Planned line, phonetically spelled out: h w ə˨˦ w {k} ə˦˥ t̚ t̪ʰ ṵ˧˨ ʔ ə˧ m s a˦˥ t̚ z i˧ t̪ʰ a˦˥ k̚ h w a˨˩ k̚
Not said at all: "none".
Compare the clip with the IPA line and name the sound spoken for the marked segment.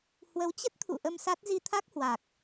t͡ɕ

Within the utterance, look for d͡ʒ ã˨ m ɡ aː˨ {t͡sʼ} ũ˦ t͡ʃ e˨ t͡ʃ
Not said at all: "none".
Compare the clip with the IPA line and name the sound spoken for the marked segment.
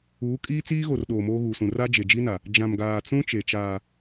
t͡s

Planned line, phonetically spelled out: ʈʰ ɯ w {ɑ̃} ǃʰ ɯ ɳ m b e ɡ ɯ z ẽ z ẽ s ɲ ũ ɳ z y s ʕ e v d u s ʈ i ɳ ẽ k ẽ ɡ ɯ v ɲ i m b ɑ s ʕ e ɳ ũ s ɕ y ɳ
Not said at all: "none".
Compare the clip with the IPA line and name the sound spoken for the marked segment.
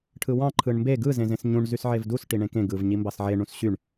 ɑ̃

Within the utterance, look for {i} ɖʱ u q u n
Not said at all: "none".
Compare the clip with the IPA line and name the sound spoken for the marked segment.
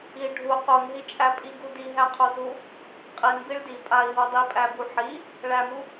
i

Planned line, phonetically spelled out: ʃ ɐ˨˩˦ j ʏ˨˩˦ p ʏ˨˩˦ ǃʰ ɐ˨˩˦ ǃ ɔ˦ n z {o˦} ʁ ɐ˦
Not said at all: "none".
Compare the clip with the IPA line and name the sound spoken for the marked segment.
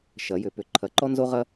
o˦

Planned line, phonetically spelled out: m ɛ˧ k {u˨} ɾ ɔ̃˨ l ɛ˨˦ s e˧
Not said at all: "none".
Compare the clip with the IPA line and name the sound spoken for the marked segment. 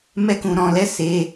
ũ˨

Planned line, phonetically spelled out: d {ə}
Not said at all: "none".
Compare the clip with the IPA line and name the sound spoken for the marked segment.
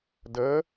ə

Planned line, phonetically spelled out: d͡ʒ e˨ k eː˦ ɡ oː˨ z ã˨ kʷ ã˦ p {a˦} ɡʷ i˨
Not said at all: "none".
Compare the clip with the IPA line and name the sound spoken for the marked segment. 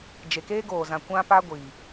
a˦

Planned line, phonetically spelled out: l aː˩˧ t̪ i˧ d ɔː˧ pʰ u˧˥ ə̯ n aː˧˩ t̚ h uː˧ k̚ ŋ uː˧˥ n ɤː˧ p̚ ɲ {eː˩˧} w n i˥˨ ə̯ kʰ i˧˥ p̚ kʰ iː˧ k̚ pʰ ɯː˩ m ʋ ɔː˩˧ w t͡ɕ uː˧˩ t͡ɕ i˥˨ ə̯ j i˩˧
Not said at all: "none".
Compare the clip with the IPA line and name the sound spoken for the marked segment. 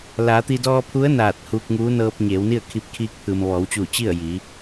eː˩˧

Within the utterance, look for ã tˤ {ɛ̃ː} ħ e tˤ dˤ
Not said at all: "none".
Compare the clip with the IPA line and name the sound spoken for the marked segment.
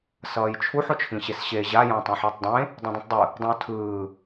ɛ̃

